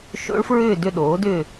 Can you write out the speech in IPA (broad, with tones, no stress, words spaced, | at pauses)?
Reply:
ʃo̰˦˥ɭfɹʏː˥˧ dʏ˥˧ɗoː˨˥dʏː˥˧